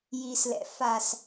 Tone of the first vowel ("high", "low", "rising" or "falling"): low